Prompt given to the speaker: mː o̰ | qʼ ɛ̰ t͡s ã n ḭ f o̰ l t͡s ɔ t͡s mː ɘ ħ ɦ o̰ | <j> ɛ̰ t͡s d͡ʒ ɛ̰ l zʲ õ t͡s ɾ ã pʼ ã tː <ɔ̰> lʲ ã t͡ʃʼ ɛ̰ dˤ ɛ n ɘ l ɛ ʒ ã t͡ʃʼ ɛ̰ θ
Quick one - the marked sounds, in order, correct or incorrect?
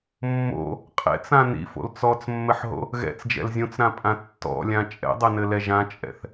incorrect: ɣ, correct

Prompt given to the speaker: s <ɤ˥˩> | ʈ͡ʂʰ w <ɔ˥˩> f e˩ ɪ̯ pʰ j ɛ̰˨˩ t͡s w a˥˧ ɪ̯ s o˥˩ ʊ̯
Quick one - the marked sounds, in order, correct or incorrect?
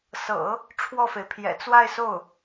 incorrect: ɤ̰˨˩˦, correct

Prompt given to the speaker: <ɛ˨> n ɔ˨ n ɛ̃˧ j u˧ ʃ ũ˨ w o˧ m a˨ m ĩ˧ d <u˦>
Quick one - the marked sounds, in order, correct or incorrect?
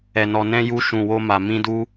correct, incorrect: u˧

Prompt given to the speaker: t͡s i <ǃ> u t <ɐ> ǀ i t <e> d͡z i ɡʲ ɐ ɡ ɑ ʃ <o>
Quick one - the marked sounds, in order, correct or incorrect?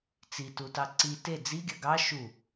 incorrect: t, incorrect: ɑ, correct, incorrect: u

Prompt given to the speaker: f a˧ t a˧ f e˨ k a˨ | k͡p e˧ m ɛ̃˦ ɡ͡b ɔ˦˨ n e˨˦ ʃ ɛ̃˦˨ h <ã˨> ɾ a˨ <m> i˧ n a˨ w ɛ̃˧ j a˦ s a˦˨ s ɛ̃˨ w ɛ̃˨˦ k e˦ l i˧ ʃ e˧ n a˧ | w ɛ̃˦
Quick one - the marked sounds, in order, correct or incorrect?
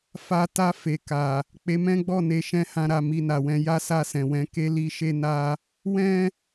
incorrect: ã˧, correct

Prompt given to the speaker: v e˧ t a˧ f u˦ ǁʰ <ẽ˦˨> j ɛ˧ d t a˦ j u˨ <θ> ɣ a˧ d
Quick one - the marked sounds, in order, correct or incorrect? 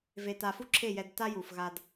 incorrect: e˦˨, incorrect: f

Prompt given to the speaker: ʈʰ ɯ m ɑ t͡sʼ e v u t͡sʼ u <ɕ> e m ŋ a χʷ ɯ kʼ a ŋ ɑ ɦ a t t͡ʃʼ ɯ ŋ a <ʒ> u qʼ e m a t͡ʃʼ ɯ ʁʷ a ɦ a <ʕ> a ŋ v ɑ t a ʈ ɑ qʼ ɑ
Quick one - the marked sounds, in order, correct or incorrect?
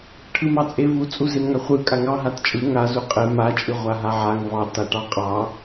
incorrect: z, incorrect: z, correct

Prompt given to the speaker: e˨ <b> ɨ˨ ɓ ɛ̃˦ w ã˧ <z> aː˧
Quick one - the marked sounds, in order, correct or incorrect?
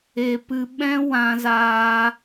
incorrect: p, correct

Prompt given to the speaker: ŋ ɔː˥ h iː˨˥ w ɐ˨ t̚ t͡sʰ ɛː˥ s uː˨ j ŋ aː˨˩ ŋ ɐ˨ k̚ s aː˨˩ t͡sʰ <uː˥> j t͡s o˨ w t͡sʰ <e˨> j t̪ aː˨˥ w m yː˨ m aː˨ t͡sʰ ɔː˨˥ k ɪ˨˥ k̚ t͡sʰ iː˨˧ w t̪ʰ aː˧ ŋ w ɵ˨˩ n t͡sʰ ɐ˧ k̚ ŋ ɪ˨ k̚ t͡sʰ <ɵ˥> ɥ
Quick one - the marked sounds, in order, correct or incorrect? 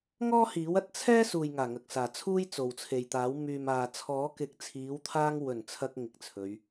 correct, correct, incorrect: ɵ˨˧

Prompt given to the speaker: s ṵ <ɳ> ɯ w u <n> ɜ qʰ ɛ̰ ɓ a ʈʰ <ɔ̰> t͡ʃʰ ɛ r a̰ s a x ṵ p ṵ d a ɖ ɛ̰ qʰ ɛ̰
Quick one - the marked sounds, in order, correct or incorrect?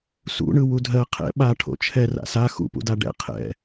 correct, incorrect: dʱ, incorrect: o̰

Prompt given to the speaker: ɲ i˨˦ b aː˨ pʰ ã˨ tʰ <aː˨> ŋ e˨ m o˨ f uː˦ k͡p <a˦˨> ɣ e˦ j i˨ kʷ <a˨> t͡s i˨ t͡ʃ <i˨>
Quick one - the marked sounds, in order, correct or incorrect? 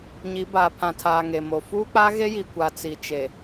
correct, incorrect: a˦, correct, incorrect: e˨

